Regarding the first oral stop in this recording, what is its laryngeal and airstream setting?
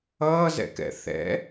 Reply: plain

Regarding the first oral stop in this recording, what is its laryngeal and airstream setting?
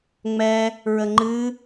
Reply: click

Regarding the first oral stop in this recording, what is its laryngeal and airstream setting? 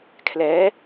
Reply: aspirated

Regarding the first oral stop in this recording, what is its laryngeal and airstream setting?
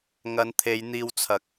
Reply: aspirated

